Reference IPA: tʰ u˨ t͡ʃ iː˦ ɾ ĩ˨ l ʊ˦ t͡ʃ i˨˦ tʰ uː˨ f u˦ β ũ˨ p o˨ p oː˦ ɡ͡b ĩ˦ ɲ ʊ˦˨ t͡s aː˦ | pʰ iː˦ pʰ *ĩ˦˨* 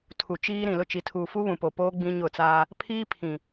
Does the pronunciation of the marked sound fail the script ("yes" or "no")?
yes